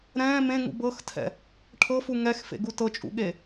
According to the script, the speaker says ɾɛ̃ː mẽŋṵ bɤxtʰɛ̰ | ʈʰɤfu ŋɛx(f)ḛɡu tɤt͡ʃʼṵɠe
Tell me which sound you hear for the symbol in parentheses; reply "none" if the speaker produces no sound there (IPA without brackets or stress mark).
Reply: f